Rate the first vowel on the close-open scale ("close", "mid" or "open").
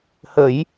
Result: mid